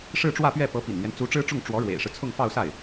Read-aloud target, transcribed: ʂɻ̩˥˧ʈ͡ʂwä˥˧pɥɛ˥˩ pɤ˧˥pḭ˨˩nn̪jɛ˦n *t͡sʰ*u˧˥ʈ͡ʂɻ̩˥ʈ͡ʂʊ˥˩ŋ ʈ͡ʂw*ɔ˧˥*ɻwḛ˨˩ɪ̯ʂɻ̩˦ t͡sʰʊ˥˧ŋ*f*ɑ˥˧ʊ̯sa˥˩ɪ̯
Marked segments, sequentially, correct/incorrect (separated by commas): incorrect, correct, correct